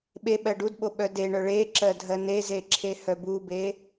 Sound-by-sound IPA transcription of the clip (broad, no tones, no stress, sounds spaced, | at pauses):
ɓ e ɓ ɜ ɖ u d ɓ o ɓ œ d e ɳ œ ɭ e ǁ ɜ dʱ ɜ n e z e ǁʰ e h œ b u b e